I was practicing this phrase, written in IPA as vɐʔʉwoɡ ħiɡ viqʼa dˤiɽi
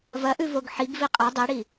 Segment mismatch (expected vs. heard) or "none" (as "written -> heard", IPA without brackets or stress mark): w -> v